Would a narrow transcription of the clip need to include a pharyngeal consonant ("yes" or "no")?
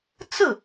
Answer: no